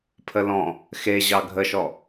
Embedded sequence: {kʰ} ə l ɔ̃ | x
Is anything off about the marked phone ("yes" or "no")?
yes